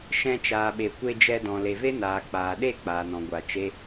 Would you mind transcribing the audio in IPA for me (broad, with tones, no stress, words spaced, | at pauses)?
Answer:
ʃɛ̃˧t͡ʃaː˨ɓe˨ kʷe˧ d͡ʒɛ˧dɔ̃˨ le˨ve˦naː˨k͡paː˨ ɗe˦˨ k͡paː˨nɔ̃˨ ɡʷa˨ t͡ʃe˦